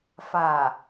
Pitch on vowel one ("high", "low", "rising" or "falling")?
low